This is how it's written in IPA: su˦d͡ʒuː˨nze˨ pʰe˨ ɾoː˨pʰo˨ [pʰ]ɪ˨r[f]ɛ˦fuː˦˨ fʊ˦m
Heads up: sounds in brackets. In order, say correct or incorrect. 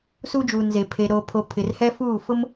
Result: correct, incorrect

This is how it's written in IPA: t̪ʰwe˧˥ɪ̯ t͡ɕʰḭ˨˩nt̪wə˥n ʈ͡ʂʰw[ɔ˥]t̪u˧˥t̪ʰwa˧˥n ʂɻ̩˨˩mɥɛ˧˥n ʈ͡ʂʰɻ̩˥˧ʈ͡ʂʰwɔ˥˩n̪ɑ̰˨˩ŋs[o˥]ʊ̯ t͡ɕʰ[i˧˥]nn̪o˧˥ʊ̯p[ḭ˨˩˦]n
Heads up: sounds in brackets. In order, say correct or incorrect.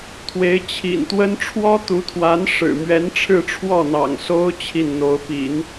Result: correct, correct, incorrect, correct

